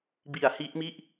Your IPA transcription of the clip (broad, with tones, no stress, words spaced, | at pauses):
bi˨˩a̯hi˦˥ʔmi˥˩ʔ